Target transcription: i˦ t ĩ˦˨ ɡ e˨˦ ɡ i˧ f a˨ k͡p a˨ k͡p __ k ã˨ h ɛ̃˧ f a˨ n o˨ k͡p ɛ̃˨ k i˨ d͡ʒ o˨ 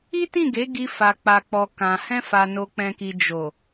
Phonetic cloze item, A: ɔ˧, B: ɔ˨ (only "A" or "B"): B